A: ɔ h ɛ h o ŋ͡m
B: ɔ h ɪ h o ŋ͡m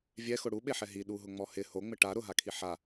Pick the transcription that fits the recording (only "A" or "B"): B